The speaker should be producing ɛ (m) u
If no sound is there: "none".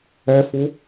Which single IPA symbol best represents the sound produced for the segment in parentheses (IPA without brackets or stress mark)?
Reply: f